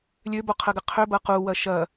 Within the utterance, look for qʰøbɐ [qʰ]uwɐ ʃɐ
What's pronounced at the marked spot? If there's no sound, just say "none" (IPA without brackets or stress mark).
q